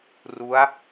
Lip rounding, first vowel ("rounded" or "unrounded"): rounded